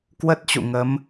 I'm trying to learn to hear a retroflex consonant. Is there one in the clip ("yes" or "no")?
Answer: no